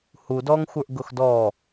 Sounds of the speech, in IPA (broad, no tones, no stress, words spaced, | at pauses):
hu dɔŋxʷə˞ʔ ɡʊxdɔ